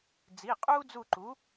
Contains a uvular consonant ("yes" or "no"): yes